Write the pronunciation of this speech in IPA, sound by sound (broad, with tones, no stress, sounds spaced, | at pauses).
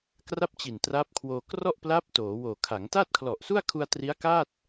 k r a˥˩ p̚ t͡ɕ i˨˩ n t r a˦˥ p̚ kʰ w oː˧ k r ɔ˥˩ ʔ p l a˦˥ p̚ t oː˩˦ w oː˨˩ kʰ a˩˦ ŋ t a˥˩ t̚ kʰ l ɔ˨˩ ʔ s u˥˩ a̯ kʰ u˧ a̯ t r i˦˥ a̯ k a˥˩ t̚